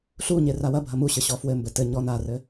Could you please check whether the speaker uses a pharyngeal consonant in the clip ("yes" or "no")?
no